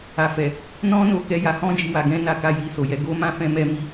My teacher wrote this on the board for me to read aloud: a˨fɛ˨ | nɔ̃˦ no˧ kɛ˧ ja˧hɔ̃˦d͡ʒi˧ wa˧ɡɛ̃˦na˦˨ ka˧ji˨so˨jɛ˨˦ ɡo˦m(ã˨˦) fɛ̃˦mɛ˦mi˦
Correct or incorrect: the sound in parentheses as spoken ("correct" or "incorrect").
incorrect